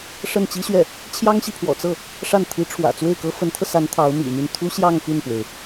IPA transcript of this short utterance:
ʂə˥˩nt͡ɕi˥ɕɥɛ˥˩ | t͡ɕʰjɑ˥ŋɕi˨ pʰwɔ̰˨˩t͡sɤ˥˩ | ʂa˥˩n t̪ʰi˧˥ʈ͡ʂʰwä̰˨˩ t͡swe˥˩ɪ̯kɤ˥ fə˧˥nt̪ʰɤ˧sa˧˥n t̪ʰɑ˧˥ʊ̯mḭ˨˩my˥˩n t̪ʰu˥ɕjɑ˥˧ŋ py˥˩npwe˩ɪ̯

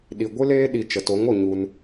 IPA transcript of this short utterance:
ɗi˨ɡʷɨ˦leː˦ ɗi˨t͡ʃə˨ to˨˦ŋo˨ ɲu˧n

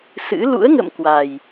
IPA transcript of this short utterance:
sɨ̰˧˥ lṵ˧˥ə̯ŋə̰˧˨m kwa˨˩j

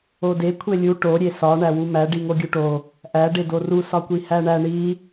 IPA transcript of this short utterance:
ode kʷʰelʲu ʈo ɾʲesɒ ɳæwumæ ɖiŋoɡʲuʈo | ʔæ ɖedoru sɒkʷihæɳæ ɳi

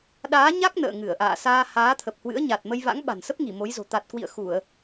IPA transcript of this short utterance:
ɗaː˨˦ɲa˦˥k̚ nə̰ː˧˨ŋɨ˧˩ə̯ʔa̰ː˧˨saː˧ haː˨˦t̪ʰə˨˩p̚hwɨ̰˧˥ə̯ɲa˨˩t̚ mə˧jva̰˧˥ŋɓa̤˨˩nsə˦˥p̚ ŋi˧˩mo˨˦jzo̤˨˩ t̪a˨˩t̚kwḭ˧˨ə̯ xu˧˩˨ə̯

